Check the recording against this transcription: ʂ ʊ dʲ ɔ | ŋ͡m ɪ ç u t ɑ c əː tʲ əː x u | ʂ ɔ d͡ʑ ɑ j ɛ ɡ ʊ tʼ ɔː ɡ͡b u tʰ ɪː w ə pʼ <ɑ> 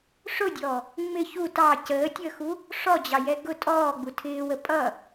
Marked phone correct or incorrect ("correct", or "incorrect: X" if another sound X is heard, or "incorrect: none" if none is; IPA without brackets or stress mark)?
incorrect: ʌ